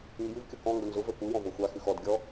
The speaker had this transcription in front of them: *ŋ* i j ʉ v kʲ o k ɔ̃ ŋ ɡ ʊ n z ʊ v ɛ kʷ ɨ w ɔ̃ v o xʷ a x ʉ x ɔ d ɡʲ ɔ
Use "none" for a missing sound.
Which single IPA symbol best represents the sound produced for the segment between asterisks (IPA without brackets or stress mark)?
ŋ